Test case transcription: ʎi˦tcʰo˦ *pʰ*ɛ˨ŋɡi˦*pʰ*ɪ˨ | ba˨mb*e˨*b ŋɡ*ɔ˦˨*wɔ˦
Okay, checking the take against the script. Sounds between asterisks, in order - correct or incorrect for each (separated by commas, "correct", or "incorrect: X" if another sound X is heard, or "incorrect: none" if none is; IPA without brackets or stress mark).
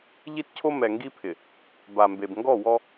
incorrect: m, correct, correct, correct